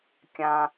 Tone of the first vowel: low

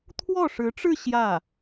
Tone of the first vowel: falling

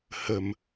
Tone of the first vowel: low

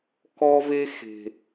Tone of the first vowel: high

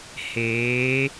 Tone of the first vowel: rising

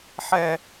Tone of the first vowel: low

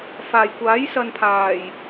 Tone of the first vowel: low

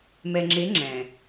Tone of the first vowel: low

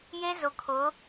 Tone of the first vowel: high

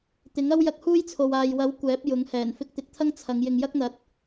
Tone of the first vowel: rising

